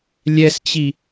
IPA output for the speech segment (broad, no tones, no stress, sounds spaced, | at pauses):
lʲ ɛ s t͡ɕ i